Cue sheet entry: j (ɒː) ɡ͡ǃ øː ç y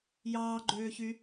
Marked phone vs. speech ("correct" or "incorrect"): incorrect